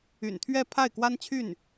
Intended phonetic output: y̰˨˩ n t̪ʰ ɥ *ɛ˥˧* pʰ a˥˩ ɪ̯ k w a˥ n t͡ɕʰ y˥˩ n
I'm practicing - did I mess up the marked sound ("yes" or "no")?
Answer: no